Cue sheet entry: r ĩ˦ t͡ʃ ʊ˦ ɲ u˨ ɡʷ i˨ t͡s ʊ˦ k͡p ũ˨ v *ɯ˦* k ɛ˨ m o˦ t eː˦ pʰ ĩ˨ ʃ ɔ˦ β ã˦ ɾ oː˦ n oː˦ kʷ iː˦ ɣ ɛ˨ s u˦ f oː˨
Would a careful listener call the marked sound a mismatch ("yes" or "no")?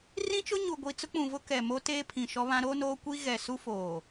yes